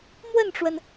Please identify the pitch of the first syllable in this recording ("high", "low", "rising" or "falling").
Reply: falling